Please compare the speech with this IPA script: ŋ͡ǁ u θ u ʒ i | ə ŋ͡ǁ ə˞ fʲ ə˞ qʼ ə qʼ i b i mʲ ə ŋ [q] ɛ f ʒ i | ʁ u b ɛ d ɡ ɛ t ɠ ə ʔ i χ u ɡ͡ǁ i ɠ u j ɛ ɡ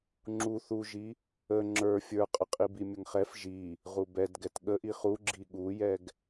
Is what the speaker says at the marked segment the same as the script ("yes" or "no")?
no